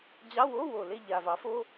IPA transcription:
d͡ʑ ɑ˧˥˧ w o˧˥˧ w o˨˩ l e˦˨ ʎ a˨˩ v ɑ˩˥ f o˧˥˧

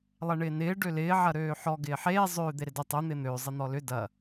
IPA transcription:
lˠ ɛ ɳ ɪː n ɪː ɖ ø l ɪː ʕ ɐ ɾ øː ħ ɔ ɡ ɪː ħ eː zˤ øː d̪ e ɾ ɪ d ə tˤ ø n̪ ɪː n̪ øː zˤ ɪ n̪ ɔ l ʏ d ɐ

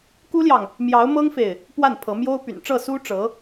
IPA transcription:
k u˥ l j ɑ˨ ŋ | m j ɑ˧˥ ʊ̯ m ɤ˥ ŋ f e˨ ɪ̯ | p w a˥˩ n pʰ ɤ˧˥ m j o˥ ʊ̯ p y̰˨˩ n ʈ͡ʂ ɤ˥˩ s u˥ ʈ͡ʂ ɤ˧˥

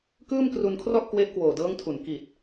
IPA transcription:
k ɯː˥˩ m k r u˧ n kʰ r ɔ˥˩ ʔ k w e˦˥ ʔ k w oː˨˩ d ɤː˦˥ ŋ tʰ u˩˦ n k i˨˩ t̚

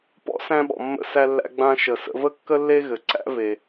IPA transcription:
p ɔ̰˥ s æ̃˧ ɓ ɔ̰˩ mː ə̰˧ s æ˧ lː æ̰˧ ɡ͡b ã˧ ʃ ə˩ s ə̰˧ v ə˥ kː ə˥ lː e˥ ɣ ɘ˩ ǀ æ̰˥ v e˩

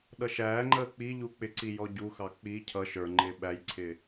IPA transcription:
ɗ ʌ ʃ æː ŋ͡ǃ əː k͡p i ʎ u k͡p ɪ ǀ i j ɔ ɟ u x ɑ k͡p i cʰ ʌ ʃ ə˞ ŋ͡ǃ ɪː ɓ æ j ǀʰ ɪː

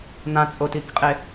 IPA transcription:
n̪ ã t͡sʼ o t i k qʼ e

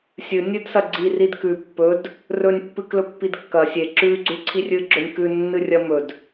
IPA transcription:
sʲ ɨ nʲ ɨ d s ɐ ɡ͡ǀ i r i d k ʉ pː ɵ d | r ɵ nʲ pː ɨ k l ɵ pː i d kː ɐ sʲ e ǁ ʉ ɡ͡ǀ ʉ ǀʰ i rʲ ɨ ɡ͡ǁ ɵ nʲ k ʉ nː ɨ rʲ ɐ m ɵ d

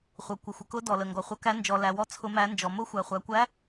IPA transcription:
χʷ ʌ˨ kʷ ə˨ xʷ ə˨ k ʊ˧˥ d ɔ˨ l ə˨ ŋ ɡ ɔ˨ χʷ ʌ˧˥ k æ˧˥ n d͡ʒ ɔ˨ l æ˨ w ɔ˧˥ t͡sʰ ʊ˧˥ m æ˧˥ n d͡ʒ ɔ˨ m ʊ˧˥ xʷ æ˨ χʷ æ˨ kʷ æ˧˥

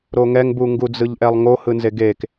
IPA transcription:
ɾ o ŋ ɛ ŋ b u ŋ ɡ u d͡z ɯ ʎ ʔ ɛ lˠ ŋ o h ɯ n z e ɡ e k

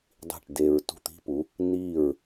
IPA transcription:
dˤ i̤˥˩ ʈ d e˧ ɹ t ṳ˥˩ t̪ i̤˥ p u˩˥ | n iː˥˩ ɹ

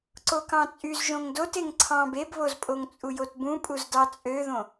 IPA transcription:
ǀ o k ɑ̃ t͡sʼ y z ʒ õ ŋ d o t e ŋ ǀʰ ɑ̃ b e b β o z pʼ o ŋ t͡sʼ u j o t b ũ pʼ u z d ɑ t͡sʼ ø ð õ

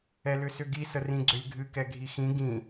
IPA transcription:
ɛ l ʏ s ʏ ɡ i s ə r ĩ ɡ͡ǀ ʏ lʲ ɡʱ ɨ k ɛ ɡʱ i x ĩ ɡ ĩ

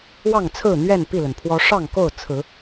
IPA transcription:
w ɑ˥˨ ŋ t͡sʰ ɹ̩˥˨ n̪ ɥ ɛ˥˨ n p i˥˨ l ə˩ n pʰ w ɔ˦ ʂ ɑ˥˨ ŋ k o˥˨ ʊ̯ t͡sʰ ɹ̩˨˦

